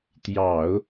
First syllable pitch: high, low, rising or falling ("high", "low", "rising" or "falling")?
low